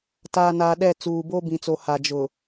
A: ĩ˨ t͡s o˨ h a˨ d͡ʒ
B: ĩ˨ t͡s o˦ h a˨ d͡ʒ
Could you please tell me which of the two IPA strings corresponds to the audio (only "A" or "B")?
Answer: A